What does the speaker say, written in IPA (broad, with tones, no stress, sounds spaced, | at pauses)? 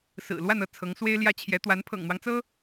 s ɹ̩˨˩ l w a˥˧ n ɤ˥˩ t͡sʰ ɤ˧˥ ŋ s w e˥ ɪ̯ l j ä˥ t͡ɕʰ j ɛ˧˥ t̪ w a˧˥ n pʰ ɤ̰˨˩ ŋ n̪ w ɑ˦ ŋ t͡s ɤ˥